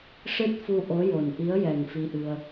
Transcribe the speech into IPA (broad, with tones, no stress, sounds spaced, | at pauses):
ʂ ɨ˦˥ t̚ f u˧ ʔ o˧˥ j o˨˩ n ʔ i˧˥ ə̯ j ɛ˨˩ ŋ f i˧ ʔ ɨ˧ ə̯